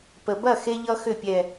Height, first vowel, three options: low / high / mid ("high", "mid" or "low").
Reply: mid